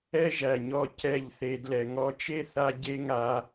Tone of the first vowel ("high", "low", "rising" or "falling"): high